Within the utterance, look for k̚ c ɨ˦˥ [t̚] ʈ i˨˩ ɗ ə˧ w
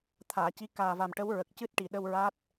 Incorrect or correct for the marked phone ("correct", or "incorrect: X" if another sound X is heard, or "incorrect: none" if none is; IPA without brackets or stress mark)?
correct